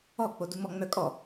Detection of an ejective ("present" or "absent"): present